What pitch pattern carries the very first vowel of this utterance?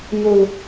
low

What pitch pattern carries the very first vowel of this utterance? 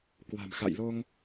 low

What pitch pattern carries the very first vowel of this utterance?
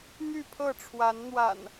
falling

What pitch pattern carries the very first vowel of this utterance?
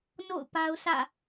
falling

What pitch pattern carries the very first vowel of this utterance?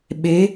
rising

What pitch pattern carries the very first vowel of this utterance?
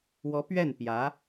rising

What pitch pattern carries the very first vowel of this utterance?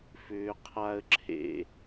low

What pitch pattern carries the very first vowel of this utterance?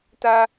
high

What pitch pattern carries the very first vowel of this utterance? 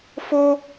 high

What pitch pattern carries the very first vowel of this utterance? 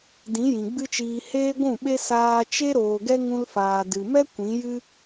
rising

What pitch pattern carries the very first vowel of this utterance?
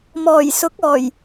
low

